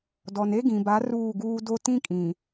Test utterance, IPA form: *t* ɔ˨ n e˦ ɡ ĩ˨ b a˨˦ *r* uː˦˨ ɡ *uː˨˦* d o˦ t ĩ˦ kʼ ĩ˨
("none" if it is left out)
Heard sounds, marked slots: d, r, uː˦

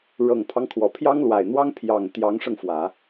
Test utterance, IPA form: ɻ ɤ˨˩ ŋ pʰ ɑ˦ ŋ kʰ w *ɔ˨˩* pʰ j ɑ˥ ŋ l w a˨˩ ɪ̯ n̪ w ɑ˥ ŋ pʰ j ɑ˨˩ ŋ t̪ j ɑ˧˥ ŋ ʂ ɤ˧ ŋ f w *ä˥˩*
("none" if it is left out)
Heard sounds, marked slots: ɔ˨˩, ä˨˩˦

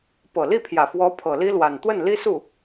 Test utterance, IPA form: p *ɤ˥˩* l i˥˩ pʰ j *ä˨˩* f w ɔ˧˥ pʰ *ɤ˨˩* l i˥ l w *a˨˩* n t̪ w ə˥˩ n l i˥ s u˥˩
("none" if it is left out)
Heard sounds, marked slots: ɤ˨˩, ä˨˩, ɤ˨˩, a˨˩

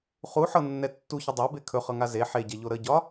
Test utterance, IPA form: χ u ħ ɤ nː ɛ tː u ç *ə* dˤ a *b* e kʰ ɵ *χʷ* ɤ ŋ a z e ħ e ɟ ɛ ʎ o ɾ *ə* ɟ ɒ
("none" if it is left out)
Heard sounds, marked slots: ə, b, χ, ə

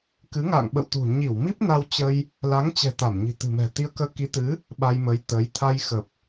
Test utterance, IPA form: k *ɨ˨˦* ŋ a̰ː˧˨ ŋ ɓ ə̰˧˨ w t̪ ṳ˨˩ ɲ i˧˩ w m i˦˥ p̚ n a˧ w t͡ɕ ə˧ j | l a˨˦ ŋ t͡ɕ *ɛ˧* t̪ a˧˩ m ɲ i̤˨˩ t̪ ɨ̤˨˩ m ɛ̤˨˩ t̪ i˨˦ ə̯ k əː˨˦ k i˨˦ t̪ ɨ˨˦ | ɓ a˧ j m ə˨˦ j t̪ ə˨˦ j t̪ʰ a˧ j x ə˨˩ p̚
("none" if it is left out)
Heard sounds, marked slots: ɨ˨˦, ɛ̤˨˩

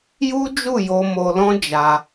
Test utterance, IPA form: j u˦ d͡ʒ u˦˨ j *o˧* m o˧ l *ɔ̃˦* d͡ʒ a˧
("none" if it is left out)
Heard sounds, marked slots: o˧, ɔ̃˦

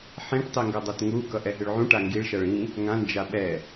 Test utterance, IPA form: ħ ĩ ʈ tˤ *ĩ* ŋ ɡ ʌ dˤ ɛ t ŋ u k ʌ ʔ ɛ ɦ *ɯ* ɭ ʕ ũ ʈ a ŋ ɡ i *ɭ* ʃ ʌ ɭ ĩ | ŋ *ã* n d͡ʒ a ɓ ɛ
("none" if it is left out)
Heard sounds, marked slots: i, ɯ, ɭ, ã

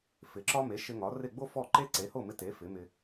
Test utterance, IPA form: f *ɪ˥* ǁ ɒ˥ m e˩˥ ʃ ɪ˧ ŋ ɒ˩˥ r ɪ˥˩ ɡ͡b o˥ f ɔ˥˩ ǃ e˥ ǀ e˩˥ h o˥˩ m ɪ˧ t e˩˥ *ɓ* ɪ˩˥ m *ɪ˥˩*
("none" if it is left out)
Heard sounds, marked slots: ɪ˩˥, f, ɪ˧

